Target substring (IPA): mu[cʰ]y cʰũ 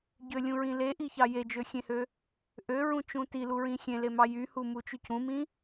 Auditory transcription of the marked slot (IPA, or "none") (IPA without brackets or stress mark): t͡ʃ